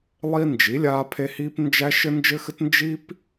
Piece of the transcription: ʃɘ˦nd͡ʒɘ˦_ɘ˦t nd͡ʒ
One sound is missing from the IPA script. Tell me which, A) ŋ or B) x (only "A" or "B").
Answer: B